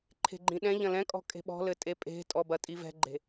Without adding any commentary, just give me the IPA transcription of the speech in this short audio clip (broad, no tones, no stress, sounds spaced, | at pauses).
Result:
ǃʰ e̤ ɡ͡ǃ ĩ ɗ ɛ̃ ʎ ɐ̃ l ɛ̃ kʼ ɔ̤ kʼ e̤ ɓ ɔ̤ l ɘ tʼ e pʼ e̤ tʼ ɔ b ɐ tʼ i v ɛ̤ ɡ͡ǃ e̤